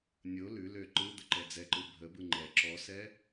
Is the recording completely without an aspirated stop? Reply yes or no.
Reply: yes